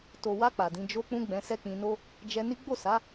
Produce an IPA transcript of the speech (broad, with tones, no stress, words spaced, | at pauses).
to˨wa˧ k͡pa˨dĩ˨˦ d͡ʒo˧k͡pũ˧ ɡ͡bɛ̃˧sɛ˦k͡pĩ˧no˦ | d͡ʒɛ˧ni˦ ɡ͡bo˦˨sa˨˦